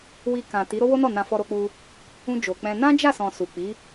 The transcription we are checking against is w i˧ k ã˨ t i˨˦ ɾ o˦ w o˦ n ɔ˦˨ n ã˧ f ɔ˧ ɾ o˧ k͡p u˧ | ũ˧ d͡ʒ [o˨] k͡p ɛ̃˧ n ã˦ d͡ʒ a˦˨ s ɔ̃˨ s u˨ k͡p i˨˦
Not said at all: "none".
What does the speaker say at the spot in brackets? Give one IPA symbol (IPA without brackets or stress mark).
o˨